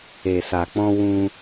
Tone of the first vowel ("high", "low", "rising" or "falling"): low